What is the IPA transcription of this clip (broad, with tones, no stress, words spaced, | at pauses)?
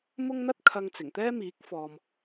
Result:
mʊ˥ŋn̪ɐ˥t̚kʰɐ˧ŋ t͡sɪ˨˩ŋt̪ɛː˥ miː˨˥k̚ fɔː˨m